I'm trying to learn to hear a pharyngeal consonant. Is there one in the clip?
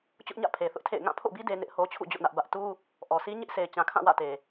no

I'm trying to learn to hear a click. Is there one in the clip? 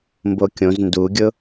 no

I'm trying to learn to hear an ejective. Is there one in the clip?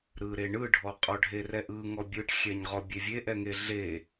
yes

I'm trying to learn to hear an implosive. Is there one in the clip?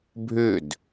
no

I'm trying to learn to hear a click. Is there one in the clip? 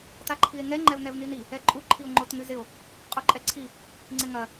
yes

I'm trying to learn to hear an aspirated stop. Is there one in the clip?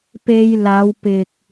no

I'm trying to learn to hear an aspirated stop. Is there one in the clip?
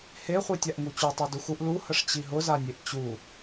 no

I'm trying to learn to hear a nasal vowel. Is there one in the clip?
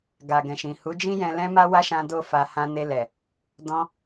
yes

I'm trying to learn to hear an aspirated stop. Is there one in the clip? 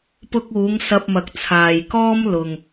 yes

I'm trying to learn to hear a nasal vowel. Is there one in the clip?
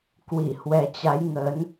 no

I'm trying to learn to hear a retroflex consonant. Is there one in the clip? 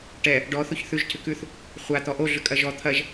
yes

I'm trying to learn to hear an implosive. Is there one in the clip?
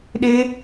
yes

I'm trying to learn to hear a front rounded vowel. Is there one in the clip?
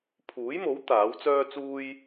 yes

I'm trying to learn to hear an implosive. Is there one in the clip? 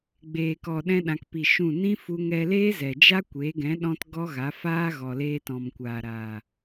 yes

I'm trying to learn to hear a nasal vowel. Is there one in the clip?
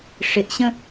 yes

